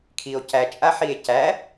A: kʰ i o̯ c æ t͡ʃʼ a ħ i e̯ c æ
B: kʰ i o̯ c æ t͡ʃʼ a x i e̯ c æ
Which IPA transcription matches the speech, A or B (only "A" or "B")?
A